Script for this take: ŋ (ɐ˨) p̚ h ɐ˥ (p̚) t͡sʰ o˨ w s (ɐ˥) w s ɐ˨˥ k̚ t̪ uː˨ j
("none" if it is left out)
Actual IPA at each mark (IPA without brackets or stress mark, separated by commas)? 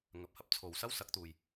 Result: ɐ˨, p̚, ɐ˥